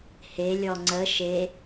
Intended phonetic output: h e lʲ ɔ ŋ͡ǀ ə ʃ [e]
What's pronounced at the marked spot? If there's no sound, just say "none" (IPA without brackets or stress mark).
e